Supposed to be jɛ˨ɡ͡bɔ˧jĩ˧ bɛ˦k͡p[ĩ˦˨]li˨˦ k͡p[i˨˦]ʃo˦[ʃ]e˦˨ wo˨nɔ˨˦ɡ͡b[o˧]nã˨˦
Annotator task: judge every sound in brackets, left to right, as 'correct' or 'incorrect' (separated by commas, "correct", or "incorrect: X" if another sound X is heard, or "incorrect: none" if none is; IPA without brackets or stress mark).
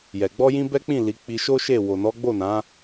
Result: correct, incorrect: i˧, correct, incorrect: o˦˨